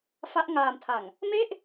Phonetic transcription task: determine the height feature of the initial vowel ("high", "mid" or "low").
low